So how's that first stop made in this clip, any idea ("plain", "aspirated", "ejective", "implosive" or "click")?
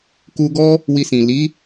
plain